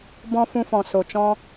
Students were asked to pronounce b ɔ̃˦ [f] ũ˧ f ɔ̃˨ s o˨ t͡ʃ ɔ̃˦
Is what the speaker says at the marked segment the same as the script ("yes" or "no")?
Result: yes